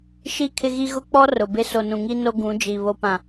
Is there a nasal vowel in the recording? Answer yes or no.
yes